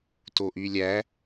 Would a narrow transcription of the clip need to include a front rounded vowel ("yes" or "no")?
yes